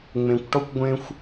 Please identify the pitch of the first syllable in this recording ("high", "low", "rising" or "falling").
low